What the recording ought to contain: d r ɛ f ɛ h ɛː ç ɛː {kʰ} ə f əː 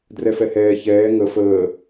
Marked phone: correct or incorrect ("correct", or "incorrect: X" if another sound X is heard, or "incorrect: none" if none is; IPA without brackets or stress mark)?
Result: incorrect: ŋ